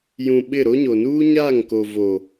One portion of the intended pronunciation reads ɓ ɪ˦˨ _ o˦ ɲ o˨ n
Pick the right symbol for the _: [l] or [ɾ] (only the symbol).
ɾ